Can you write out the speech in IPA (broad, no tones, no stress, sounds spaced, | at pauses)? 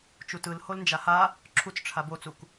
t͡ʃ u t ɯ l h o l n d͡ʒ a h a | ǁʰ u t͡s ʈ͡ʂʰ a b o t͡s u k